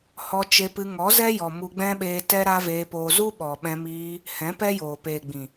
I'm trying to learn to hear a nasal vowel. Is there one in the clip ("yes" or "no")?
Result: yes